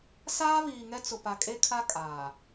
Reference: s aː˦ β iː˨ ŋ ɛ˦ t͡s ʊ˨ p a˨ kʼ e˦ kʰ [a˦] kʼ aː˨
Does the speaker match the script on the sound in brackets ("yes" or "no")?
yes